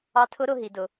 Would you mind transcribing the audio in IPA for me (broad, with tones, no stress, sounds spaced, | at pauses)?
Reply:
ɑ˧˥ tʰ ʊ˧˥ ɾ ʊ˩˧ ɦ i˩˧ d ʊ˩˧